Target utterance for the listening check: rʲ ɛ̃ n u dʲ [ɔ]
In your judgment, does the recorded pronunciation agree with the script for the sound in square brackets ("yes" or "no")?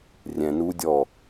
yes